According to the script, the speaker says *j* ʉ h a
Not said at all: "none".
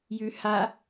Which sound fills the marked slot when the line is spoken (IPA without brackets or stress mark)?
j